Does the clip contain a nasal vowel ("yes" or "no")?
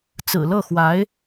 no